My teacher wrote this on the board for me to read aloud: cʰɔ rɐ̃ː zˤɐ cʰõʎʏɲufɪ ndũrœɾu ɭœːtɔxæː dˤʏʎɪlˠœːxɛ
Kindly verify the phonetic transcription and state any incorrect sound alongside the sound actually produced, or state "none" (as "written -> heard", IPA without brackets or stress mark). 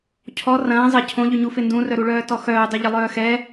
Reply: æː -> œː